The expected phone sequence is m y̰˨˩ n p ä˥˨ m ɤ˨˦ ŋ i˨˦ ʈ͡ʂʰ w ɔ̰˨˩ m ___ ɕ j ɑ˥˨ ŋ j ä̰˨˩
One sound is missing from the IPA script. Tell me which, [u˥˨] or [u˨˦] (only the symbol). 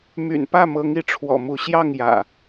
u˨˦